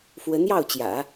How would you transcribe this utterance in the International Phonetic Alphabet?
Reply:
f w ə˧˥ n j ɑ˥˩ ʊ̯ t͡ɕ j ä̰˨˩˦

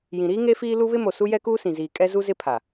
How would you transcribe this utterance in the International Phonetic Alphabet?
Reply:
j ĩ˨ ɾ iː˦ ŋ e˦ f iː˦ l u˦ β ɪ˦ m o˨ s u˦ j ɛ˦ k uː˦ s ĩ˨ z iː˨ kʼ ɛ˦ z u˦ z ɪ˦ pʰ a˨

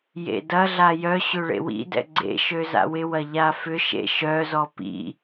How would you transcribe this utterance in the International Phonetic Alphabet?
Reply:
j ḛ d ɐ ɮ a j œ ɕ ʏ ɭ ḛ w ḭ d ɛ̰ ɡ͡ǀ ḛ ʃ ø z a̰ w ɪ w ɐ ʎ a f ʏ ʃ ḛ ʃ œ z ɔ p ḭ

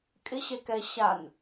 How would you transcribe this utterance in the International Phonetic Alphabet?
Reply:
kʼ ɪ ɕ ɛ k ɛ ɕ a n

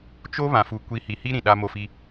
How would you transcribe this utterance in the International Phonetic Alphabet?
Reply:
t͡ʃ o˦ β ã˨ f u˨ kʷ i˨˦ h i˨ h i˦ ɾ ĩ˨ ɗ a˦ m o˦˨ f i˦

